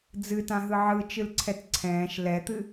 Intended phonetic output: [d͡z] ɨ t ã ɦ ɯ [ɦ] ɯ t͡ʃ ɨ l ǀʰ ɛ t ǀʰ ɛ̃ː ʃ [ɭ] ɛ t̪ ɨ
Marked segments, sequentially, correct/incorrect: correct, incorrect, incorrect

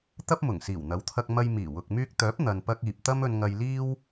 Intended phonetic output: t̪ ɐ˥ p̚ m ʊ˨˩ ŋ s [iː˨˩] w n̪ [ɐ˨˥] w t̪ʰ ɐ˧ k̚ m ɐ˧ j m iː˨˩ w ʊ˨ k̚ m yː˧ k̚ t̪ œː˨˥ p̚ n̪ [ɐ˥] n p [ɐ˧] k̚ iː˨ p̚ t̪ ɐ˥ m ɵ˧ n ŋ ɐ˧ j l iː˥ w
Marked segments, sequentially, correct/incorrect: correct, correct, incorrect, correct

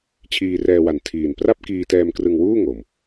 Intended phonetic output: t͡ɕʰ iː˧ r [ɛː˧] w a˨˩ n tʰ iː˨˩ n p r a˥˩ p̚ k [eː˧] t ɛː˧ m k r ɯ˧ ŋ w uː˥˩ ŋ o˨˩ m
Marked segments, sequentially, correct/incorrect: correct, incorrect

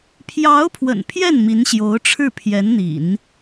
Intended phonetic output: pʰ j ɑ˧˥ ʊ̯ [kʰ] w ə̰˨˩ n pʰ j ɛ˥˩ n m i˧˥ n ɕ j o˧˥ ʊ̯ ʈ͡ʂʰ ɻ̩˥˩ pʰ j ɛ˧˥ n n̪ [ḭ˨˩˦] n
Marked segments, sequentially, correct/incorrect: incorrect, correct

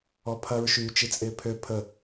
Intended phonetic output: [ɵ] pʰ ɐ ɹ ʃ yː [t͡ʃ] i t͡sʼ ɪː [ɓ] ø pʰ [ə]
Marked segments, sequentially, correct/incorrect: incorrect, correct, incorrect, correct

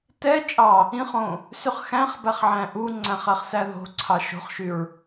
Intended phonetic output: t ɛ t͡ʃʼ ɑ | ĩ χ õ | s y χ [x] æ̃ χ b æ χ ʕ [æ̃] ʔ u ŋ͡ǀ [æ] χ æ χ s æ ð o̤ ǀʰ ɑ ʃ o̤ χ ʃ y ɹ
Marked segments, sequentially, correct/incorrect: correct, correct, incorrect

